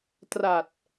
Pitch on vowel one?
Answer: low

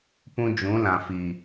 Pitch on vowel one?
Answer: high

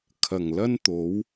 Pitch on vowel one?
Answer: low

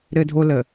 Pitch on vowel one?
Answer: high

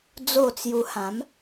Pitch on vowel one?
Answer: falling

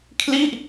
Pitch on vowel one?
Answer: falling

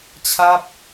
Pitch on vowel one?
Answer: falling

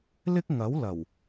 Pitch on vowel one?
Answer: high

